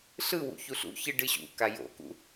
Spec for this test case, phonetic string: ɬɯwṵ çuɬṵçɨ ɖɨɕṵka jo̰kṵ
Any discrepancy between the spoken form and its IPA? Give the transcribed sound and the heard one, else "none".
none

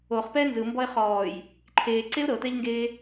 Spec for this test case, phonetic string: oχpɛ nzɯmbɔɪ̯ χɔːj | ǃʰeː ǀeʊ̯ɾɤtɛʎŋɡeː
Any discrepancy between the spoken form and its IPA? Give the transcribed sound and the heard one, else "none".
none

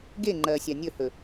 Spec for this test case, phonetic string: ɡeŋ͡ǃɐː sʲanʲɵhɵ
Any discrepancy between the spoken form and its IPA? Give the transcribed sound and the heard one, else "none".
none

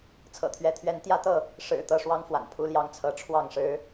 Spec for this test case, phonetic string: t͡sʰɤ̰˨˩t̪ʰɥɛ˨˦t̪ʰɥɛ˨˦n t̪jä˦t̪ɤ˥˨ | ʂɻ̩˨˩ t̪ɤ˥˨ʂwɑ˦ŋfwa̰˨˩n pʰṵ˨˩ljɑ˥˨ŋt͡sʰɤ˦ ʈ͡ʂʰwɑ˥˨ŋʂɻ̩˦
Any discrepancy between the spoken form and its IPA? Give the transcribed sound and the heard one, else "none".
ṵ˨˩ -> u˦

